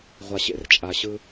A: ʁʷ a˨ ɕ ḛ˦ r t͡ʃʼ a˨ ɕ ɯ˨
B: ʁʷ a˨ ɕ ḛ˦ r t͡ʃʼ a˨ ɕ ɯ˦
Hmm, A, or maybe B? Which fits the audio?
B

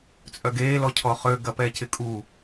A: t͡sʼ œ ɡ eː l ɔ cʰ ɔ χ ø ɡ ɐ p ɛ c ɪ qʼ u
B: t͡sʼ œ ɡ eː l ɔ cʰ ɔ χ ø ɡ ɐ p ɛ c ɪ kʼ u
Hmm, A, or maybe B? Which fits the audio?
B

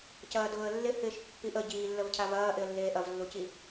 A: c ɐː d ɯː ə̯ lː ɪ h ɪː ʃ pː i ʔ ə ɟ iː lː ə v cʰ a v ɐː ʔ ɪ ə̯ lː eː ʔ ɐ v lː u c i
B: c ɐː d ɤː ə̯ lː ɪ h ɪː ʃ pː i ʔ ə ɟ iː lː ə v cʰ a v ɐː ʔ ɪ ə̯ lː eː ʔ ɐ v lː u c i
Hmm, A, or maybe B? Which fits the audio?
B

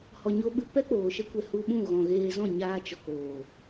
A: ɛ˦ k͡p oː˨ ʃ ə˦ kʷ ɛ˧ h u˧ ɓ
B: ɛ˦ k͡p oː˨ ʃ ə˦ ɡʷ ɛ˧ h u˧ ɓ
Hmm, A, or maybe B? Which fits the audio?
A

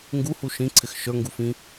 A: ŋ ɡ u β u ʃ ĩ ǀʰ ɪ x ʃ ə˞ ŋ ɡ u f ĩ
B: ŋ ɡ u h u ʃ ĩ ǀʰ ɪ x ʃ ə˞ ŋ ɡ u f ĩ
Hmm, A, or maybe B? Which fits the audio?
B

